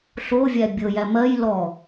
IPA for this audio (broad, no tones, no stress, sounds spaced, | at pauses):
ɬ o vʲ æ bʲ ɤ j æ m ɜ j l ɔ